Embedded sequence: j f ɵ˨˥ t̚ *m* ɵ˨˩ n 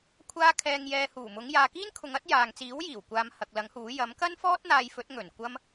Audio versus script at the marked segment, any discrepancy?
yes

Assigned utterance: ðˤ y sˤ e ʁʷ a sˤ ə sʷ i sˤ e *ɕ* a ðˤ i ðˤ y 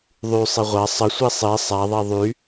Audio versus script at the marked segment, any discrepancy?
yes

